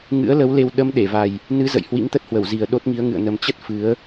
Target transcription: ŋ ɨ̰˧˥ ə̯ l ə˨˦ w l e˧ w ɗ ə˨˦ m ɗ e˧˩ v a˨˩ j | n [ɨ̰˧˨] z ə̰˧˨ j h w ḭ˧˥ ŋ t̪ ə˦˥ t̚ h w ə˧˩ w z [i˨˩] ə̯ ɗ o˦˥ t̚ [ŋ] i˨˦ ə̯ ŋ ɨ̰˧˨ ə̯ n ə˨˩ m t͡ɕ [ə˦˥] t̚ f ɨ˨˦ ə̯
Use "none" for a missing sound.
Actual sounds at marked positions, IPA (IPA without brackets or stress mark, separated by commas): ɨ˨˦, i˨˩, ŋ, ə˦˥